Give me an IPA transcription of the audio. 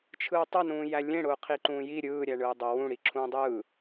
t͡ʃʰ ɯː tˤ ə n ũː j æ lʲ ẽ ɽ ʊː qʰ i ǃ ũː j i ɾʲ ɯː ɾʲ æ ɳ ɯː dˤ ʊ w ũ ɽ i ǁʰ ũː dˤ ɯː

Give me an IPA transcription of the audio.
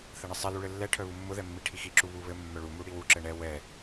θ ɘ ɳ ɘ sˤ ɛ l u ɭ ɘ lː ɛ ʈʰ œ β u mː ʊ ð ɛ mː i ʈʰ i x i ǁ u β u β ɘ mː œ ɭ u m u ɽ i w u ǁ ɘ ɳ ɛ w ɛ

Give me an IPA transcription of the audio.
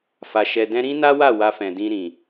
f a˨ ʃ ɛ˨ d ɛ̃˧ ɾ ĩ˦ n a˦ w a˦˨ w a˧ f ɛ̃˨ d ĩ˧ ɾ ĩ˨

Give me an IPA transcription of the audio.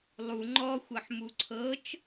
lˠ u ŋ͡ǃ ɔ xʷ ɤ ħ m u ǀʰ ɤ t͡ʃ

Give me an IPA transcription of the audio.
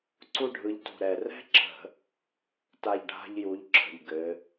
ǀ u˦ ɖʱ ɯ˨˦ ʎ t ṳ˨˩ ɾ ɛ˨˩ r ɛ̤˦ ǁ ə̤˧˩˧ | t a˦˨ ʎ ɖʱ a̤˦ ʎ j u˨˦ ʎ ǁʰ ə̤˨˩ ʎ ɡ ɘ˨˦

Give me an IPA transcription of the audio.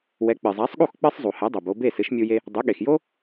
w ɛ˩˥ k͡p ɨ˩ zˤ a˩˥ sˤ ɠ u˥˩ x k͡p ɨ˥ sˤ zˤ u˩ h ɛ˩˥ dˤ o˩ b o˧ b e˥˩ s ɨ˩˥ ʃ mʲ u˧ j e˧ | dˤ ɨ˩˥ ɠ e˩ x j o˥

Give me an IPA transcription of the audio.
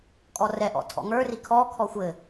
kʼ ɔ r ɛ ʔ ɔ̰ tʰ ɔ̰ ŋ ə˞ r i kʰ ɔ kʰ ɔ xʷ ɘ

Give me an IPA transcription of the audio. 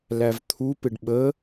l æ v t̪ʰ u p ɪ ɖ ɓ ə

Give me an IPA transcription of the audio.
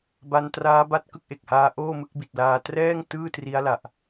b a˧ n t r aː˦˥ b a˦˥ t̚ k ɯ˥˩ k̚ ʔ e˨˩ k̚ h aː˦˥ ʔ oː˥˩ m ɯ˥˩ k̚ b i˨˩ t̚ l aː˧ t r ɛː˥˩ ŋ t ɯː˥˩ t r i˦˥ a̯ l a˨˩ ʔ

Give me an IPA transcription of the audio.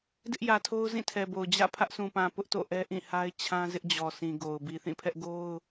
d ɪ˦ ʔ j ä˨ tʰ o˦ ʊ̯ z ĩ˦˨ tʰ ɛ˨ b o˨ ʊ̯ d͡ʑ ä̰˦˨ pʰ ä˦ ʔ s ũ˨ p ã˨ p ʊ˦ ʔ t o̰˦˨ ʔ ɛ˦ ʔ ĩ˦˨ h a˦ ɪ̯ t͡ɕʰ ã˦ z ɪ˦ ʔ d͡ʑ ɔ˨ s ĩ˨ ɡ o˨ ʊ̯ b i˨ θ ĩ˦˨ pʰ ɛ˦ ʔ ɡ o˦ ʊ̯

